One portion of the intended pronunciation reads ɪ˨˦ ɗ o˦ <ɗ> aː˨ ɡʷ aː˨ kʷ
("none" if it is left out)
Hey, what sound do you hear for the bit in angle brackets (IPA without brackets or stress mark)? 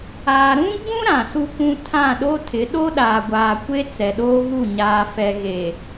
ɗ